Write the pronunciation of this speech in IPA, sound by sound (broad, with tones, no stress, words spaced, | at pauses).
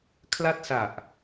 kʰla˥˩t̚sa˨˩ʔ